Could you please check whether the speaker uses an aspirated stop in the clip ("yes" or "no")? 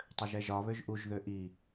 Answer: no